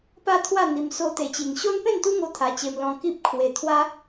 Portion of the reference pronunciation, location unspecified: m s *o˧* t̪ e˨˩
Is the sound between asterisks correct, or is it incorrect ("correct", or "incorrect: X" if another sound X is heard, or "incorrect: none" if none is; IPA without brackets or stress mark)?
correct